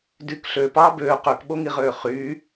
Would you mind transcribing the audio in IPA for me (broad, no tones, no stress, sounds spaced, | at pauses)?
d y k ɬ øː p ɑː b øː q ø k ɓ o ŋ i ʁ øː χ yː